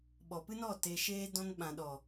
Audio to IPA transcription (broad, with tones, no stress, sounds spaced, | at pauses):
ɓ ɔ˨ p ɨ˦ n ɔ˦˨ t e˨ ʃ eː˧ d ɔ̃˧ n ɓ ã˨ ɗ ɔ˨